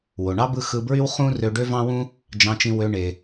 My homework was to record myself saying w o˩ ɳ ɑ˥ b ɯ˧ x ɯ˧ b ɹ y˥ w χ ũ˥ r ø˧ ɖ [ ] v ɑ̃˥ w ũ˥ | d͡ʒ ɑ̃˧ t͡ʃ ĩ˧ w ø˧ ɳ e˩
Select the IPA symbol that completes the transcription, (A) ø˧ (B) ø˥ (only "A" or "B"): B